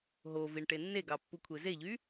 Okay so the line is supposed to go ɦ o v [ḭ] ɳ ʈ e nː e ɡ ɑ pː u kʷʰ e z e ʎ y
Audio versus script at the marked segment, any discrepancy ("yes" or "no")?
yes